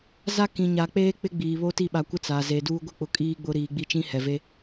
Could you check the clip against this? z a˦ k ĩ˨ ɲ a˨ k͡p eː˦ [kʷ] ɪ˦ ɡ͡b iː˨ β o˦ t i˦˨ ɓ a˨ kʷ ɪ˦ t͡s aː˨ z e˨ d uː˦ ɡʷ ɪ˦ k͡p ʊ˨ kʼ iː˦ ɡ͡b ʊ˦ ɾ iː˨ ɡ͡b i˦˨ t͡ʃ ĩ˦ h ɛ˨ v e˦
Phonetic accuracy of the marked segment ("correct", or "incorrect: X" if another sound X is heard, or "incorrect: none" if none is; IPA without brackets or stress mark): incorrect: k͡p